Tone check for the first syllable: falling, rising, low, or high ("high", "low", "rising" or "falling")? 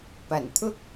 low